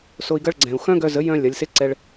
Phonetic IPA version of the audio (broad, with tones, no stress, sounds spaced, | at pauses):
s o˧ i̯ ɡ ɐ˦ ɭ ɡ͡ǀ ɛ̃˨ u̯ x œ̃˦ ɡ œ˧ z ə˨˦ j œ̃˦ lʲ ɐ˨˦ lʲ s e˦ ǀ ɛ˧ ɭ